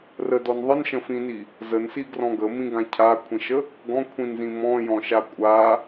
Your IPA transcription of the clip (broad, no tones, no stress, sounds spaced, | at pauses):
r ə d ɔ n ðˤ ə n ʃ ə̃ f ĩ n i | z ə n s i ɡ r ɔ̃ ɡ ə m ĩ ɡ ã cʰ a kʷʰ ĩ ʃ ə | ɡ ɔ̃ kʷʰ ĩ n z ĩ m ɔ̃ j ɔ̃ ʃ a kʷʼ a